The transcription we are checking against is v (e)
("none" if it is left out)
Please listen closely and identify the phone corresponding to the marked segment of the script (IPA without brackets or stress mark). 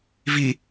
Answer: i